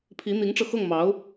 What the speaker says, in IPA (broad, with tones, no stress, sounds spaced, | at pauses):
pʰ i˧˥ n̪ i˧˥ ŋ ʈ͡ʂ ɤ˧ x ɤ˥˩ ŋ m ɑ˧˥ ʊ̯